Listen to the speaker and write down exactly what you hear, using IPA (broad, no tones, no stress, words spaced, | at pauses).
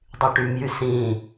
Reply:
dˤyʈymjy sĩ